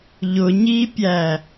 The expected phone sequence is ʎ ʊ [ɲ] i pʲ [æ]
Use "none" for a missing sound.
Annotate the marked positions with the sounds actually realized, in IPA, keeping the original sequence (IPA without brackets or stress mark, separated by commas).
ɲ, æ